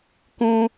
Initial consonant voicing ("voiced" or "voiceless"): voiceless